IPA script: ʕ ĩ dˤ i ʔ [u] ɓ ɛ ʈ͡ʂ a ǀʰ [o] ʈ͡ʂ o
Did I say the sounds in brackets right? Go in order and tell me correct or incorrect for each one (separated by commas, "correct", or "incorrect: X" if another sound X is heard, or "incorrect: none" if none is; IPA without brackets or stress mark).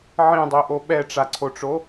incorrect: o, correct